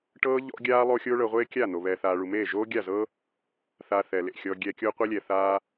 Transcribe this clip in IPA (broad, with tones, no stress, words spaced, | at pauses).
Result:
ʈɤː˦ ʎɔ̰˦ɡʲaː˦ lˠo˦xʲoː˦ɭɤ˧ ʁʷeː˦kʲa˦˨n̪o˨ βɛː˨θaː˨ɭu˨ meː˦˨ ʒoː˦ɡʲa˦˨zɤ˦ | θa˧ θɛ˨lḛ˨xʲɔː˧ ɡʲɛ˧kʲo˦ qʷe˦lʲɛ˨θaː˦